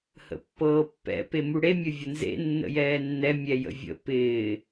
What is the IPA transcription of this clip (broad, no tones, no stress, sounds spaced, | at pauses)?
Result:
h ə̰ pː ɤː pː ɛ̰ p e m u ɽ e mʲ ə vʲ ə n z ḛ nː ə̰ j ɛː nː ɛ mʲ ɛ j ə̰ vʲ ə̰ p ɪː